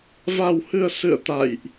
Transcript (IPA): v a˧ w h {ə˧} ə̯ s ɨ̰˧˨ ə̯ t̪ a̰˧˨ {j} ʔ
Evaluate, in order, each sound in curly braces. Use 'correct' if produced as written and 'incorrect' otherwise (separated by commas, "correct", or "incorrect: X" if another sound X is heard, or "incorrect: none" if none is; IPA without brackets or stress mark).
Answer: incorrect: ɨ˧, correct